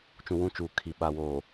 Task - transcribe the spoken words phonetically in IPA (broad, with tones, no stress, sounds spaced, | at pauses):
t͡ʃ ũ˨ w ũ˦˨ t͡ʃ uː˨ kʰ i˨ ɓ a˨ w oː˨